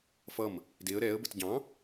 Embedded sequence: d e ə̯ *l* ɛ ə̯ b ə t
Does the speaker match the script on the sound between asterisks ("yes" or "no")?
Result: no